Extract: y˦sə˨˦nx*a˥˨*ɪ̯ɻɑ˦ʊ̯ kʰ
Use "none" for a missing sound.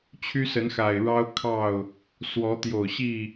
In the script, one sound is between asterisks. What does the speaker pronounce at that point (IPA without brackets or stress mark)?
a˨˩